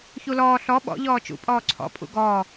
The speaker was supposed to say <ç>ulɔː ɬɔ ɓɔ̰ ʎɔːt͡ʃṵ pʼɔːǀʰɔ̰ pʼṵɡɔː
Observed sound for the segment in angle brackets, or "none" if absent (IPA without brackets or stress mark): ç